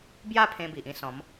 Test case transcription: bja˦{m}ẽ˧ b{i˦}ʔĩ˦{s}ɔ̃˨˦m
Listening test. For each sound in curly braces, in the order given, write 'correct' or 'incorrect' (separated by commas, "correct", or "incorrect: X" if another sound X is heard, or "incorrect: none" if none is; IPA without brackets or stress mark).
incorrect: pʰ, incorrect: i˨, correct